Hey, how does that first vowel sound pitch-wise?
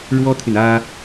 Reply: high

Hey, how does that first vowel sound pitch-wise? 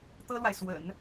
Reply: high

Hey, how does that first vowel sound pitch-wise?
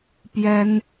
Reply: high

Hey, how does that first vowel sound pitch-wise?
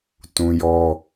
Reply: high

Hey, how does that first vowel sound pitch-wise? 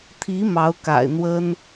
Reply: rising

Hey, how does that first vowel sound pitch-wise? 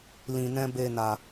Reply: low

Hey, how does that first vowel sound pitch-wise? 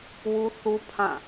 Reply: high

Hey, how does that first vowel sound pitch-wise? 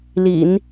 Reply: low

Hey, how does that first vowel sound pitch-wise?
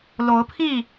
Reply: rising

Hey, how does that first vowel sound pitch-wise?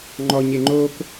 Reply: low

